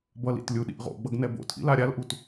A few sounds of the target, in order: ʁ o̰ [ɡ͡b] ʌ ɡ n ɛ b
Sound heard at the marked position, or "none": ɡ͡b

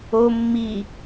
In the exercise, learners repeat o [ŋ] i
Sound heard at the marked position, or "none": mː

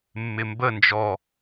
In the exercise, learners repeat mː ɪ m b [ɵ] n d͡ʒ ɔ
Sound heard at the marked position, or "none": ə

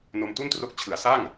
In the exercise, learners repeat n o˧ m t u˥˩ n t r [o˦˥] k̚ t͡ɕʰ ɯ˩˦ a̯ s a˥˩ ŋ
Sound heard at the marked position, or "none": o˦˥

